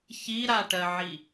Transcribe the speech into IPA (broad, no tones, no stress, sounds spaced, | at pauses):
ç i ɾ a ʈ ɜ ʕ i